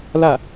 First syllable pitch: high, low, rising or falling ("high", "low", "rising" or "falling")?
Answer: falling